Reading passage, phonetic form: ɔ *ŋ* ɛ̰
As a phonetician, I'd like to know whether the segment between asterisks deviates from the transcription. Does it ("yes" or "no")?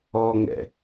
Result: no